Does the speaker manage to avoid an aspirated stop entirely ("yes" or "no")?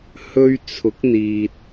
no